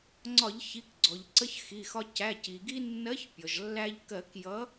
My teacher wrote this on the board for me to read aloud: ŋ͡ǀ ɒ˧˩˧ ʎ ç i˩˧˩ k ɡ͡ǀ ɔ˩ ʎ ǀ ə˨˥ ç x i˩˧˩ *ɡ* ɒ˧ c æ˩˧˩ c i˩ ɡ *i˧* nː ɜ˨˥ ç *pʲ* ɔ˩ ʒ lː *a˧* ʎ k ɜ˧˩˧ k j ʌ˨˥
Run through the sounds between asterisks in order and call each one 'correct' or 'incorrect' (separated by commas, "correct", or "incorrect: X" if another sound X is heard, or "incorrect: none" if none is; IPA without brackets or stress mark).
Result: incorrect: x, correct, correct, incorrect: æ˧